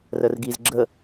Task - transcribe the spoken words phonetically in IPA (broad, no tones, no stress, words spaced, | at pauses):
rərɡiz ɡ͡ǁə